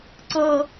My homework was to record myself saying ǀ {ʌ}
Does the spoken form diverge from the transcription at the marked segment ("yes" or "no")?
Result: no